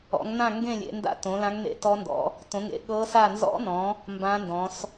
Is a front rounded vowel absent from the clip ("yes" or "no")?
yes